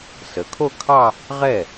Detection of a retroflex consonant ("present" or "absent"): absent